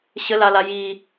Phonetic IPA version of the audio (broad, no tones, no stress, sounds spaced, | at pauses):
ɕ ə l a l a j i